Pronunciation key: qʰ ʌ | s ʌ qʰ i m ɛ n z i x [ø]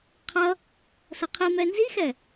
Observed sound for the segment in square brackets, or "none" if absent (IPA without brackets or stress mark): ɛ